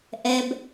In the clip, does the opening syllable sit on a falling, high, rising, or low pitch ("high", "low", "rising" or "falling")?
low